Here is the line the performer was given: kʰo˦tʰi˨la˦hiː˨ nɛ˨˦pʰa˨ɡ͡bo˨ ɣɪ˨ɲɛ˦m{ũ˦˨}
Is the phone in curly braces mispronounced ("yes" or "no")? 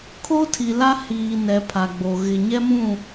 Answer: no